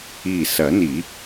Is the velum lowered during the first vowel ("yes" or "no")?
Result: no